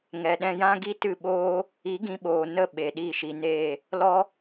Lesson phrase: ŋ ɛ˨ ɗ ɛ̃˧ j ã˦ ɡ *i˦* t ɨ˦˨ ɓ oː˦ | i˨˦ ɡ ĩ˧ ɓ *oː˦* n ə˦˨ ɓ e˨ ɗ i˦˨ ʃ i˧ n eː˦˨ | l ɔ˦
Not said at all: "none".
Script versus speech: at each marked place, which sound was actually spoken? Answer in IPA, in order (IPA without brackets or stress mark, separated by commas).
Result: i˦, oː˨